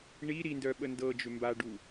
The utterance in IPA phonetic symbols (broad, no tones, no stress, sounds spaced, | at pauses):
ɳ i ɾ i n d œ ɓ ə n d ɤ d͡ʒ ʏ m b a ɖ u